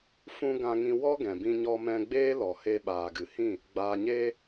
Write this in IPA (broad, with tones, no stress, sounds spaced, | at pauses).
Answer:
f ũ˧ ɡ ã˧ ŋ ĩ˧ w ɔ˦ ɡ ɛ̃˨ b ĩ˧ ɲ ɔ˧ m ɛ̃˧ ɡ͡b eː˦ l ɔ˨ h e˧ ɓ aː˨ ɡ ɨ˨ h ĩ˦˨ | ɡ͡b aː˨ ɲ eː˧